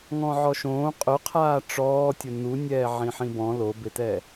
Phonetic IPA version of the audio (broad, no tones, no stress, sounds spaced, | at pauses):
ŋ ɔ̃ ʕ ɔ ʃ õː qʼ ʊ qʰ aː ʈ͡ʂ ɔː tʲ ʊ n u nʲ ɛː ʕ ĩ ħ ĩ b ɔ̃ l o b ɪ t ɛ